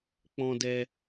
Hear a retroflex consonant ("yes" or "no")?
no